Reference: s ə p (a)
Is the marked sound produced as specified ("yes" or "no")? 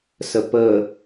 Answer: no